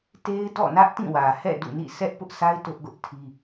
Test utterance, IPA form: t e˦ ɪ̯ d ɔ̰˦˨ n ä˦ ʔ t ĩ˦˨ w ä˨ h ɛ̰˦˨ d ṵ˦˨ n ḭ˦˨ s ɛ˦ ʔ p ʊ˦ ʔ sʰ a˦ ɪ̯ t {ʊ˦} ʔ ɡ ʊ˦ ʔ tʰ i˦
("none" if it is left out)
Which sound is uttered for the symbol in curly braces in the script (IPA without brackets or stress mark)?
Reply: ʊ˦